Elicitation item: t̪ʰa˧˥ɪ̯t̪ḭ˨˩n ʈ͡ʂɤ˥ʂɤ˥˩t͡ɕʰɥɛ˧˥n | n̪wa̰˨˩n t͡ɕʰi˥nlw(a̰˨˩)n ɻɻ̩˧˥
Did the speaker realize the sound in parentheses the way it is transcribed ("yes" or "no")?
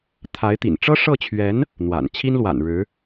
yes